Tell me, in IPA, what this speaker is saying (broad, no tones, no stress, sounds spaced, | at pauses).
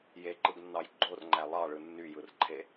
j e ǃ ɯ ɡ nː ɑ j ɡ͡ǃ o r ŋ͡ǃ æ lˠ ɑ ɭ ɯ nː y j ɯ r ǃʰ e